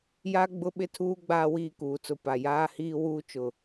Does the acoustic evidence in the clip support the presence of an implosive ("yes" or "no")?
yes